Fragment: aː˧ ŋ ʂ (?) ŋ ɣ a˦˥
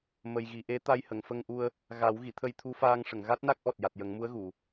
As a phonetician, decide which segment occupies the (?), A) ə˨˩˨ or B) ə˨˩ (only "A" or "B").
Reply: A